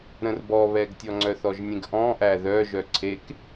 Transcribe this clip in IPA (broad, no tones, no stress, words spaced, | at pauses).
ɾə̃rbɔβɛɡtʲɔ ŋ͡ǀœθɔʒnʲẽɡʔɔ̃ ʔæðœ ʒœǀʰek